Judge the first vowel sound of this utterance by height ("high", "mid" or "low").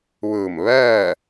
high